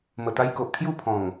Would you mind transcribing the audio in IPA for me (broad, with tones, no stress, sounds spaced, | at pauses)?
m ə˨˩ t̪ a˧ j k o˨ ʔ kʰ j u˥˧ pʰ ɔ̃˨˩ ŋ